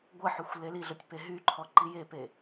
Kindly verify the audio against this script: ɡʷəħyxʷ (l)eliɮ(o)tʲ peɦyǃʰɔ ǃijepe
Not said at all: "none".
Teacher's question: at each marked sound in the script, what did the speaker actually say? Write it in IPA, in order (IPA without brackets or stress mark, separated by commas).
l, o